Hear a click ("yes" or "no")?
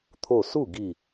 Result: no